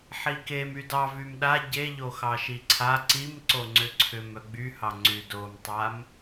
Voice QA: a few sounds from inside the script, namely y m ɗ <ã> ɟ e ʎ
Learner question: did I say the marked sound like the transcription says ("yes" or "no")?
no